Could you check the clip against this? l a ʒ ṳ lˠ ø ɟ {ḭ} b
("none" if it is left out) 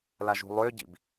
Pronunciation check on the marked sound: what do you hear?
ḭ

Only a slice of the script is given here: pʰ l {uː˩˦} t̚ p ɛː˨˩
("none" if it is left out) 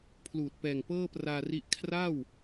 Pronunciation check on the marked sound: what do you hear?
uː˨˩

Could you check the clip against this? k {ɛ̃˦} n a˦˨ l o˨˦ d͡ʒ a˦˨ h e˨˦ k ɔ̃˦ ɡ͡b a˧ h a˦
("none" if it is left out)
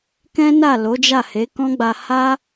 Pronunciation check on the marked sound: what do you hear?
ɛ̃˦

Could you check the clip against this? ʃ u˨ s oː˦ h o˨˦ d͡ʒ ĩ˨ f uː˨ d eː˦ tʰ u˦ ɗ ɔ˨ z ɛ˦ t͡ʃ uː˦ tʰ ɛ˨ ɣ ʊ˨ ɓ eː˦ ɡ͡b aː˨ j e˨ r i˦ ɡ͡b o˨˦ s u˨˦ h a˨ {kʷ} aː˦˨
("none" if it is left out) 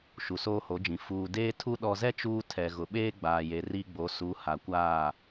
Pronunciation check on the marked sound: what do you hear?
kʷ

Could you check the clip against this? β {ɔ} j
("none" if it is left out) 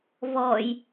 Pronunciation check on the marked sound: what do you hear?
ɔ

